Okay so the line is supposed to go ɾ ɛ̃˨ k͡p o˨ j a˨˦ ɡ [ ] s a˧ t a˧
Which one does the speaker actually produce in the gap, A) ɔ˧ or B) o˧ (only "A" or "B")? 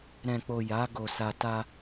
B